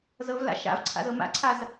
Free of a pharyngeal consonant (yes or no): yes